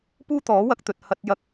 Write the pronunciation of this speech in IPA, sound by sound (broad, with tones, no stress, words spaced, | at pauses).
puː˥t̪ɔː˨˥wɐ˧k̚ t̪ɵ˨t̚ hɐ˧t̚jɐ˧k̚